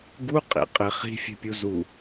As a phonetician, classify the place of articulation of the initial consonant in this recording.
velar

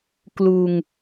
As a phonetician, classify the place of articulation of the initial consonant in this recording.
velar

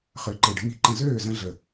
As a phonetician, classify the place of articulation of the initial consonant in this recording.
uvular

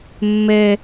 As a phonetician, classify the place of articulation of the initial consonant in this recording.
labial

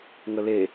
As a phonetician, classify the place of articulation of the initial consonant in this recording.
velar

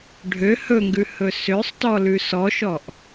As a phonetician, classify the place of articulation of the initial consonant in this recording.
retroflex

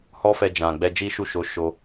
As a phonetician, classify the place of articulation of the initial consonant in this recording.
glottal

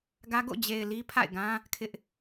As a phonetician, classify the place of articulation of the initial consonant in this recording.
velar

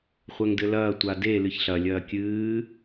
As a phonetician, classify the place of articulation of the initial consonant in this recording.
uvular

